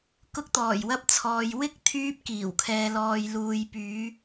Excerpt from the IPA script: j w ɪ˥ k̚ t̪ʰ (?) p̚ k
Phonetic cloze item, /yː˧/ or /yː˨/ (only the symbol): yː˧